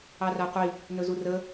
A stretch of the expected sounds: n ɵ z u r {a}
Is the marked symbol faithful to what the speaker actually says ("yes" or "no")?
no